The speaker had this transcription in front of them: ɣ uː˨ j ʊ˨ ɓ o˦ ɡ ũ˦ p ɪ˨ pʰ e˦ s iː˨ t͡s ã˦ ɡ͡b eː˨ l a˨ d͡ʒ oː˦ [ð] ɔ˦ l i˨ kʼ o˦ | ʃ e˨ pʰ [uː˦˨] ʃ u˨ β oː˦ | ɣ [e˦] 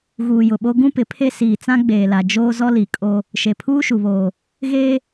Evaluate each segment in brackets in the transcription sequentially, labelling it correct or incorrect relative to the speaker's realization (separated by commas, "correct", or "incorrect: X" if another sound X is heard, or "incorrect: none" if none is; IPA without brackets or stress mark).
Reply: incorrect: z, incorrect: uː˦, incorrect: eː˦